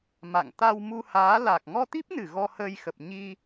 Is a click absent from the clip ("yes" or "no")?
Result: yes